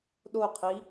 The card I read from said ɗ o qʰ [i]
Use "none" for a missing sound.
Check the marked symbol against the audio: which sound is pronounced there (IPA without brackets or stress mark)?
i